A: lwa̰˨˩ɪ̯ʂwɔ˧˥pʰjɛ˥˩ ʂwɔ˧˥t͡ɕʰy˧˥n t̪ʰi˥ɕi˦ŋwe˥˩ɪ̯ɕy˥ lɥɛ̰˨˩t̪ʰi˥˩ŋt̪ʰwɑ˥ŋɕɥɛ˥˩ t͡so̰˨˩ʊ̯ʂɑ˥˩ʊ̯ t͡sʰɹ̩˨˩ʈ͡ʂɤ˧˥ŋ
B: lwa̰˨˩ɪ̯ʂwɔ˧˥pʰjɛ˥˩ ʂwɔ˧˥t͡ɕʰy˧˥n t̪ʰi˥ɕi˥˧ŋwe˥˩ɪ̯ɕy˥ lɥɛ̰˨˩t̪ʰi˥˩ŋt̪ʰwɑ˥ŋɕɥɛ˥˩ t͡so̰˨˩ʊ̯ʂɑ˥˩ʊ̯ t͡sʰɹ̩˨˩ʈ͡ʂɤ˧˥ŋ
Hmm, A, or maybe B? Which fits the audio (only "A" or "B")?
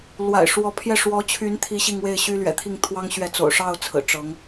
B